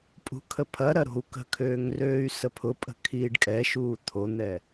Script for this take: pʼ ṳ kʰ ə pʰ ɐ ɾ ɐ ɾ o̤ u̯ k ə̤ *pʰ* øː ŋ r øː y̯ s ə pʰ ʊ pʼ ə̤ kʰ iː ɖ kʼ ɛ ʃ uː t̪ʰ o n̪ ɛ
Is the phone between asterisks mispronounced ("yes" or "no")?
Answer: yes